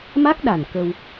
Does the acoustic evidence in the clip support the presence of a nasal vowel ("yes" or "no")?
no